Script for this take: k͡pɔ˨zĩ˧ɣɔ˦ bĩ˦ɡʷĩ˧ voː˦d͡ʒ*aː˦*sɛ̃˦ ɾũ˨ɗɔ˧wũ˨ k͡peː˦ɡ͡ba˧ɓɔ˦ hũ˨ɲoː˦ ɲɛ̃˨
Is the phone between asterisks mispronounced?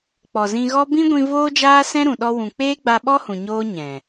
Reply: no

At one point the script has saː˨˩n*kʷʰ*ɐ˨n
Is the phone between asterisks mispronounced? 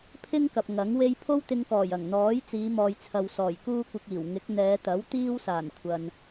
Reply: no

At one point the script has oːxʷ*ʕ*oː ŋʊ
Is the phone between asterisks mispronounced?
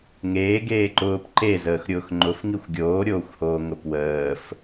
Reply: yes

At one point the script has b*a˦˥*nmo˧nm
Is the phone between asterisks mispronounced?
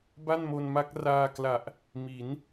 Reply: yes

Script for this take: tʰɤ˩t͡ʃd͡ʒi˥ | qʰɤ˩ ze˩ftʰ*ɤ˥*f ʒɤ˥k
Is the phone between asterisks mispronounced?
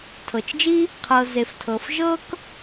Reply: yes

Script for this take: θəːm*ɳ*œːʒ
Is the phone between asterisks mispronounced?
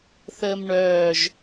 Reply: no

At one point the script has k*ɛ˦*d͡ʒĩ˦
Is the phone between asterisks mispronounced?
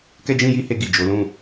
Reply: no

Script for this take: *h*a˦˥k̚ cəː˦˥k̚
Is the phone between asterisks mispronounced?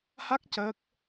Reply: no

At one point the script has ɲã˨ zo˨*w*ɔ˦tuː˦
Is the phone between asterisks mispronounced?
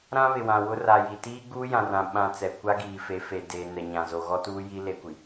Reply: yes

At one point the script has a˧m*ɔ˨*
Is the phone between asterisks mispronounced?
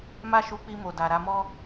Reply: yes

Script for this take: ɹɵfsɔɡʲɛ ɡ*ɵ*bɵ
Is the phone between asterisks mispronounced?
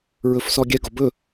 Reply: yes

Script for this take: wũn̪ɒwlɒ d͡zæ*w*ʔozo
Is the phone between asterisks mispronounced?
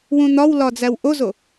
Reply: no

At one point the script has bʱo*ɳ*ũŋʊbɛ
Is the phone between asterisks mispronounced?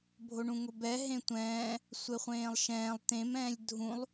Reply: no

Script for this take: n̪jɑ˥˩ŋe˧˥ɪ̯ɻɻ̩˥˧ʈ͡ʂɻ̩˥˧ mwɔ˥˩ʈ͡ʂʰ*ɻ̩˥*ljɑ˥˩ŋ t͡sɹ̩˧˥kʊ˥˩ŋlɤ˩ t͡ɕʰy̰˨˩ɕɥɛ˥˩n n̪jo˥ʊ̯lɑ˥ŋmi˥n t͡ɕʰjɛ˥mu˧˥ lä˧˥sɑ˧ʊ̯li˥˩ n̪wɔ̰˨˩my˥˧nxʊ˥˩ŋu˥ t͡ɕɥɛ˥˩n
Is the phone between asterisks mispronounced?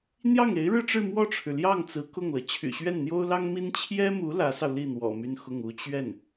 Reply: yes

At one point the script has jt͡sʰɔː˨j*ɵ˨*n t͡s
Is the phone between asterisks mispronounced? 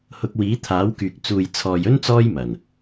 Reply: yes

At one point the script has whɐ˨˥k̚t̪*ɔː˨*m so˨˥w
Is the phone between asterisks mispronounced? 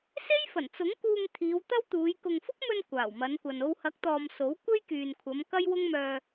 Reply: no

